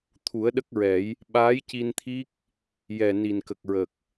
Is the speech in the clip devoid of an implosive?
no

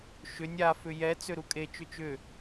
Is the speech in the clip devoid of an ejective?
no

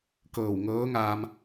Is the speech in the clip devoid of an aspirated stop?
yes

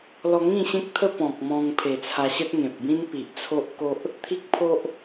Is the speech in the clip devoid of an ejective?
yes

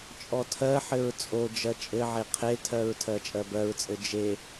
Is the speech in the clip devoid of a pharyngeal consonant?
no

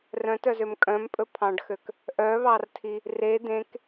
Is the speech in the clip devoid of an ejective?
no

